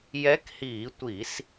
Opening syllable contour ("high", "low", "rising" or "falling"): rising